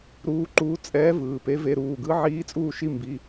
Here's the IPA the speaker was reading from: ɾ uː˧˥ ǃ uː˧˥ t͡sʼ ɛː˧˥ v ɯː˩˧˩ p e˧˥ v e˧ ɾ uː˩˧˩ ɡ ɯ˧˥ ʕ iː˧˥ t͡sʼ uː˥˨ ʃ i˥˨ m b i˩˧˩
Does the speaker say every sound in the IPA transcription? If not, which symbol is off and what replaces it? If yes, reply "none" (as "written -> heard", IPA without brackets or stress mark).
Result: none